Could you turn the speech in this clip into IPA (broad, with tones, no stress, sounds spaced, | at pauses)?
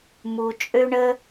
m u˧ t͡ʃʼ ø˦ ɳ ə˦